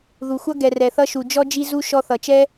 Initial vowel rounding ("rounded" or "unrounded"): rounded